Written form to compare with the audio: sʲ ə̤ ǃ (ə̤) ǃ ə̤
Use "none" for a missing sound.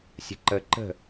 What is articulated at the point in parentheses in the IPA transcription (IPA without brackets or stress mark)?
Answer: ə